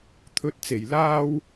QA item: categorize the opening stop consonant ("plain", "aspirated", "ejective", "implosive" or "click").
aspirated